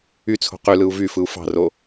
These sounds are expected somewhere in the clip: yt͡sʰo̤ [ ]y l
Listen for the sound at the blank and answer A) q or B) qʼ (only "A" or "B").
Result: A